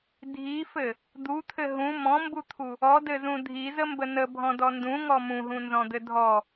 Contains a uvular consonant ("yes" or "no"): no